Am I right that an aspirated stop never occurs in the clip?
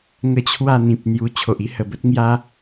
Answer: no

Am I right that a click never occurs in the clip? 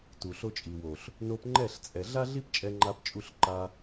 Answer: no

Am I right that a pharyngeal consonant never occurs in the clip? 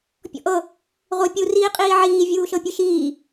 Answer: no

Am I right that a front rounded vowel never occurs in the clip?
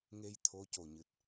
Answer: yes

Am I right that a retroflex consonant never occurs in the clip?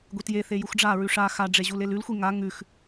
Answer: no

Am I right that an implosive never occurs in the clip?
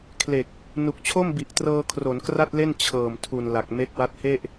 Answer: yes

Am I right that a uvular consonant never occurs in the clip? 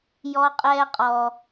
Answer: no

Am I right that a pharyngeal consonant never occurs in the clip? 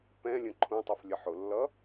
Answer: no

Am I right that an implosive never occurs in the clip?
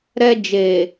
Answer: yes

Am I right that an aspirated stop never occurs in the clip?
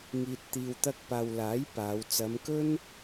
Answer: yes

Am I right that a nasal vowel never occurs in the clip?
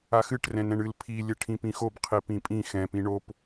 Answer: no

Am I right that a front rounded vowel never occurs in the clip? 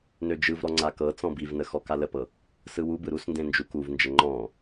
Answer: no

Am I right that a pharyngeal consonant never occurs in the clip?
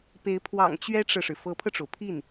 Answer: yes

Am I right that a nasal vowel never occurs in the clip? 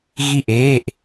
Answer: yes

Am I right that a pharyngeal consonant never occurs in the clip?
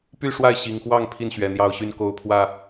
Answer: yes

